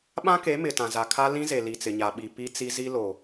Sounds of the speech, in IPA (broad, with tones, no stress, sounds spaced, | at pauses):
ɓ ã˦ k e˨˦ m ɪ˨ t ã˨ z a˨ kʰ a˦ l ĩ˦ z e˨ l i˨ t͡s ɪ˨ ɲ a˨ ɓ i˨ p i˦ t͡s i˦ z i˦ l o˨